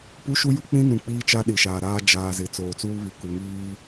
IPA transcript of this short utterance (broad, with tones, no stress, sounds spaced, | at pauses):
p u˦ ʃ u˦ j u˦ k͡p ĩ˦ n ũ˨ k͡p iː˦ t͡ʃ a˦ ɗ i˨ ʃ aː˨ ɾ aː˦ d͡ʒ aː˨ z ɪ˨ t͡s oː˨ t͡s uː˦ β i˨ k u˨ ŋ iː˦